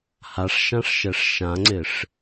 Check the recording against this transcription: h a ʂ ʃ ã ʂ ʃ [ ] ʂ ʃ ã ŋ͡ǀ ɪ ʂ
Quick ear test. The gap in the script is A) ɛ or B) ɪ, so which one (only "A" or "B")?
A